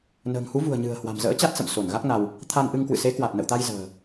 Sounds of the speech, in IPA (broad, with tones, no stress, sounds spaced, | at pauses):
n ə̤ː˨˩ ŋ h u˨˦ v ṳ˨˩ ə̯ ɲ ɨ̤˨˩ ə̯ h w a̤˨˩ m z ə̰ː˧˥ t͡ɕ a˦˥ t̚ s ə̰˧˨ m s o˧˩ n ɣ a˦˥ k̚ n a˧ w | t̪ʰ a˧ n ʔ ɨ˧ ŋ k w ɨ̰˧˨ s e˨˦ k w a˨˩ t̚ n ə̰˧˨ w t̪ a˧ j z ə̤ː˨˩